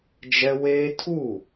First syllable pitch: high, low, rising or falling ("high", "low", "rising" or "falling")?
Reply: high